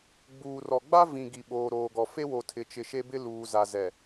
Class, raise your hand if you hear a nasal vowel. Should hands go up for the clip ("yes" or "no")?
yes